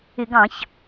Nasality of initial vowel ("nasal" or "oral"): oral